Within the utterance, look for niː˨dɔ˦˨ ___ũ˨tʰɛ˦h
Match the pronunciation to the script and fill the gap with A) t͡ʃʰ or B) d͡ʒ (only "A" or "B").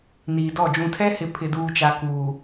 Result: B